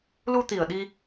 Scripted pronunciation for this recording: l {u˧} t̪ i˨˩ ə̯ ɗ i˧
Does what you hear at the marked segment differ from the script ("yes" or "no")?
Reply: no